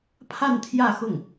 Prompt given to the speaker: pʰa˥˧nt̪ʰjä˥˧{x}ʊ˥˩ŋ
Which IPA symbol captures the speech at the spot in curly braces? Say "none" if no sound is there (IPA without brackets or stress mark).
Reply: x